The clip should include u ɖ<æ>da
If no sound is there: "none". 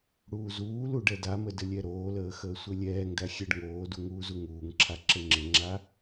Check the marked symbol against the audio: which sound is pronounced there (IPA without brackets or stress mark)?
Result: ɛ